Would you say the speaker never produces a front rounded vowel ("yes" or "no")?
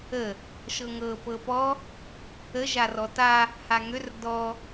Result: no